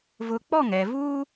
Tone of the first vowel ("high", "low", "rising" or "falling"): high